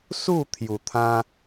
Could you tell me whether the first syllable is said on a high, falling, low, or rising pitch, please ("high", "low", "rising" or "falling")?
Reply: falling